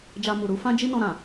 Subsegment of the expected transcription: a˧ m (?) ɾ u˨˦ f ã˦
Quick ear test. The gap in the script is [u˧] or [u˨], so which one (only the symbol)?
u˨